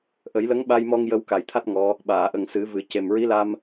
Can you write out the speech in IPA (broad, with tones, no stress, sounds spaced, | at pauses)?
ʔ ə˨˩˦ j l ə˧˥ ŋ ɓ a˧ j m ɔ˧ ŋ j ə˧ w k a˨˩ j t̪ʰ a˦˥ t̚ ŋ ɔ˧˥ | ɓ aː˨˩˨ ʔ ə˨˩ ŋ s ɨ˨˩˦ v ɨ˨˩˦ c e˨˩ m ɹ i˧˥ l a˧ m